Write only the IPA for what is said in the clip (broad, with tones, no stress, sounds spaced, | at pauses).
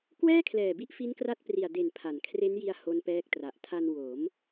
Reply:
k w ɛː˥˩ kʰ l ɛː˨˩ b i˦˥ ʔ f i˦˥ n k r a˦˥ t̚ p r i˨˩ a̯ d e˨˩ n pʰ a˩˦ n kʰ r e˦˥ n j i˧ a̯ h o˦˥ n p ɛː˦˥ k̚ t r a˨˩ ʔ tʰ a˧ n w o˩˦ m